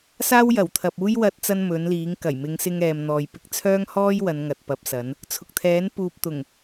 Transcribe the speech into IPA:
s aː˥ w j ɐ˨˩ w t̪ʰ ɐ˨ p̚ uː˥ j w ɐ˥ t̚ t͡s ɐ˥ n m ɵ˨˥ n l iː˨˥ ŋ k ɐ˨˩ j m ɪ˨˧ ŋ s ɪ˧ ŋ ɛː˨ m n̪ ɔː˨ j p ɪ˨˥ k̚ t͡sʰ œː˥ ŋ h ɔː˥ j w ɐ˨˧ n ŋ ɐ˨ t̚ p ɐ˨˥ p̚ s ɐ˨˥ n | t͡sʰ ʊ˨ k̚ t̪ʰ ɛː˨˥ n p uː˨ p̚ t̪ ʊ˨˩ ŋ

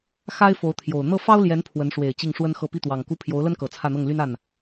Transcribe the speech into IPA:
x a˥ ɪ̯ f o˧˥ ʊ̯ t̪ʰ j o˨˩ ʊ̯ n̪ ɤ˥˩ f ɑ˥ ʊ̯ l j ɛ˧˥ n pʰ w ə˧˥ n ʂ w e˨˩ ɪ̯ t͡ɕ i˥˩ ŋ ʂ w ə˥ n x ɤ˥˧ p i˥˩ t̪ w ɑ˨˩ ŋ k u˥˩ pʰ j o˧˥ ʊ̯ l ə˥ n k ɤ˨˩ t͡sʰ ä˥˧ n̪ ɤ˥˩ ŋ l y˥ n a˥˩ n

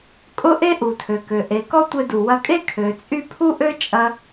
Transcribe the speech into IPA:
kʼ ʊ˥ ʔ e˥ ʔ u˩ tʰ ø˩ k ø˩ ʔ e˩ k ɔ˥ tʷ e˧ d u˩ w ɐ˧ kʼ e˥ kʰ ø˩ t͡sʼ y˥ pʰ u˥ ʔ ø˥ t͡ʃʼ ɐ˧

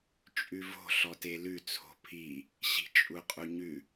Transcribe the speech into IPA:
t͡ʃʼ ʉ v o̤ ɬ ɔ t e l ʉ t͡sʰ o̤ pʰ i | ɕ i̤ t͡ʃʼ u qʼ u ɲ ʉ

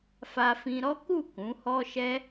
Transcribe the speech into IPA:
f a˧ f ĩ˧ ɾ ɔ˦ k u˦˨ k ũ˨˦ h ɔ˦ ʃ ɛ˦

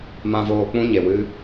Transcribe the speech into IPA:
m ã˧ v oː˧ k͡p ũ˦ ɲ e˨ w ɨ˦

